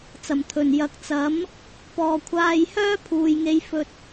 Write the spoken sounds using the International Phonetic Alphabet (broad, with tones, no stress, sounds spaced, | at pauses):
t͡s ɐ˨˩ m t̪ʰ ɵ˨˩ n j ɐ˨˥ k̚ t͡s ɐ˨˥ m | p ɔː˧ kʷʰ aː˧ j h œː˥ pʰ uː˨ j ŋ e˧ j f ɵ˧ t̚